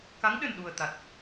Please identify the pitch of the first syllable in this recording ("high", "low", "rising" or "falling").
rising